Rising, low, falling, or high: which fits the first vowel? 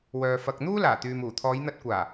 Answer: low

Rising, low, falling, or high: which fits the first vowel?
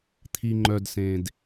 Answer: low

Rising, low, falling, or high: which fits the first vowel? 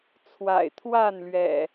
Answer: low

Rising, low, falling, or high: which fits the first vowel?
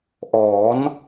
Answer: rising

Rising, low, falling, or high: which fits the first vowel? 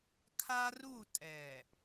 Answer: high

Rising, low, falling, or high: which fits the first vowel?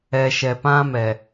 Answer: low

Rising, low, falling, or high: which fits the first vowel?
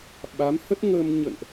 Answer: rising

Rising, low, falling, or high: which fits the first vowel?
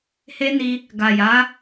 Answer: high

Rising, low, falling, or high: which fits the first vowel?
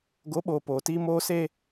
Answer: rising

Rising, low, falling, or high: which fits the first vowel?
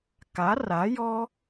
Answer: rising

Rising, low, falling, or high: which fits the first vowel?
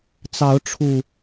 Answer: rising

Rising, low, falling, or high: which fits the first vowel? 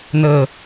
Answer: low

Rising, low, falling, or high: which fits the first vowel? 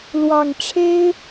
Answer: low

